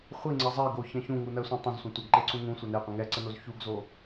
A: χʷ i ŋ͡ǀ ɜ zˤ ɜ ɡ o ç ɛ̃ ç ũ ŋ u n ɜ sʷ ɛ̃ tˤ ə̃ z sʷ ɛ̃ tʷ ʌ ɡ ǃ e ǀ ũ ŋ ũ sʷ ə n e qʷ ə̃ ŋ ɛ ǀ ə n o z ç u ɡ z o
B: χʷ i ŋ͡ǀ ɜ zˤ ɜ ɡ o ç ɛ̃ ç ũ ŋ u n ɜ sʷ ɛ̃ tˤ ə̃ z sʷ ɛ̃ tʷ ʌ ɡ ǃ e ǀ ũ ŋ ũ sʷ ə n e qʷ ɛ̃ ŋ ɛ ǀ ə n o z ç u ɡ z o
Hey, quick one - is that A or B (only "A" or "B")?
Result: A